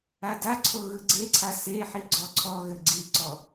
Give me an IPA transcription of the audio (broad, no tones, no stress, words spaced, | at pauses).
adaǀʰo ɣɯɡ͡ǀeǀʰa seħi ɡ͡ǀɔǀʰɔɣɘ ɡ͡ǀiǀɔ